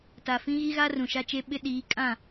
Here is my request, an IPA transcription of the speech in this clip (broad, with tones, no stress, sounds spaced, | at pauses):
t a˨ f ĩ˦ ɣ i˦ ɣ a˦ r ũ˨ ʃ a˦ t͡ʃ e˦ ɓ ɪ˦ ɗ iː˨˦ kʼ ã˦˨